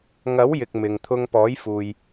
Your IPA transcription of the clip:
ŋɐ˨˥wjɪ˨k̚ mɪ˨ŋt̪ʰʊ˧ŋ pɔː˨˥jfuː˨j

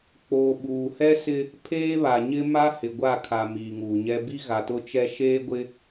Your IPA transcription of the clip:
k͡poː˨ɓuː˨hɛ˦sɪ˦ | pʰeː˦βa˨ɲɪ˦ ma˦ hɪ˨ɡʷa˦˨kʰa˨ miː˨ŋuː˨ɲɛ˦ bi˦ɣa˨tʊ˦t͡ʃɛ˦ ʃeː˦ɡʷɪ˦

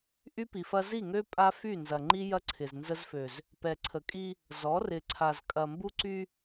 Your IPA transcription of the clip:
ʔy˦pi˨fɐ˦ zi˦˨ŋø˦ pʼa˦fy˦˨ nzɐ˨ŋ͡ǃi˦jɐ˦ ǀʰɪ˨znzə˦zfø˨z | pɛ˨ǀʰə˨kʼi˦ | zɔ˨˦rɪ˨ǀʰa˨z kʼɐ˨mbu˦ǀy˦

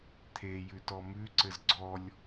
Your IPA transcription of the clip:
t̪ʰe jʉtɔmʉ ǀɘzɡ͡ǀɔlʲ

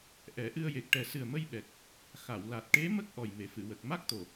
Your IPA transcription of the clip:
ʔɛ˨˩˦ʔɨ˧ə̯je˨˩k̚ ʈɛ˨˩sɨ˨˩ə̯mə˧jɓɛ˨˩k̚ | xa˨˩˨wla˨˩t̚ ʈe˧˥ mə˦˥k̚ ʔɔ˨˩jme˨˩fɨ˨˩˨wə˨˩k̚ ma˦˥k̚t̪o˨˩

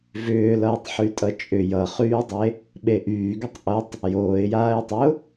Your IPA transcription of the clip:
vʏːlʌːtˤ ħytʼʌt͡ʃʼʏ jʌχyːdˤe | ɓeʔyːɡʏtˤ ʔʌtˤ | joːɪ̯jaːɪ̯tˤʏʊ̯

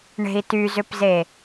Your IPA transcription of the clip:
ɳe̤i̯tyzʏpze

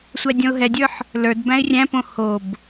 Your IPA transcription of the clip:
sʷædʲɔ̃ʊ̯ɦɛdʲə˞ħ | lə˞dbæ̃ɪ̯ rʲæ̃põ hob

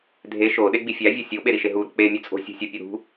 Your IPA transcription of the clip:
dʱe ʃo ɗeɡ͡bifʲæ vʲɒsʲoɓe ɾiʃeɦuɾo̤ k͡pe mʲut͡sʼo̤ sʲo̤sʲɒ pʲoɾṳ

